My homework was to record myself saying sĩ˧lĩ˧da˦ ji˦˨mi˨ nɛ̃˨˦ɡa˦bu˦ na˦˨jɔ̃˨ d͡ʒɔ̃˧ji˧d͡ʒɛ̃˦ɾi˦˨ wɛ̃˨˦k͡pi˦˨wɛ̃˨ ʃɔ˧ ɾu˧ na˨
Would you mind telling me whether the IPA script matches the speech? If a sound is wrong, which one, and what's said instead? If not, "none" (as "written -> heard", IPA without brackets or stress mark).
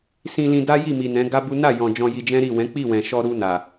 none